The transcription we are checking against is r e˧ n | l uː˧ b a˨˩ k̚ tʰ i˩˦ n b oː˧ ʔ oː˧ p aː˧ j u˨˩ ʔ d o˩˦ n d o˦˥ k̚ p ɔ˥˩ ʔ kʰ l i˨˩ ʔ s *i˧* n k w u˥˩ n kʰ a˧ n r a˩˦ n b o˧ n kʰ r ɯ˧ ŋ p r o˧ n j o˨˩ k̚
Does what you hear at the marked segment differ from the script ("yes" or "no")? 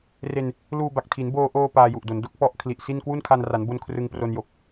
yes